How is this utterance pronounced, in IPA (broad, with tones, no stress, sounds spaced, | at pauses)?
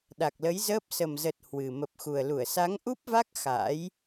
ɗ a˨˩ k̚ l ə˨˦ j z əː˦˥ p̚ s ə˨˩ m z ə˨˩ t̚ h w ɨ˨˩ m ə˨˩ p̚ x u˨˩ ə̯ l u˧˩ ə̯ s a˨˦ ŋ ʔ u˦˥ p̚ v a˦˥ k̚ x a̰ː˧˥ j